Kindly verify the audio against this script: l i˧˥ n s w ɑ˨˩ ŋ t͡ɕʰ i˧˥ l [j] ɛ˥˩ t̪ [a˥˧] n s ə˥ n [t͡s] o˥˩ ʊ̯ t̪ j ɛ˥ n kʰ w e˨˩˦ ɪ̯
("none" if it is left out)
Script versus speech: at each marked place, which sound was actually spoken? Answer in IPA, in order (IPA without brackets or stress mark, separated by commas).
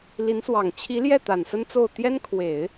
j, a˨˩, t͡s